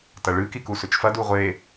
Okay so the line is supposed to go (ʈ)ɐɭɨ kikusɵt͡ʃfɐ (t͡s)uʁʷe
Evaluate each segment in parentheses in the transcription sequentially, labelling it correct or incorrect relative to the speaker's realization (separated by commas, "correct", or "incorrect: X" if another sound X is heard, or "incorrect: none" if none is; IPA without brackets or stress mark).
incorrect: t, incorrect: d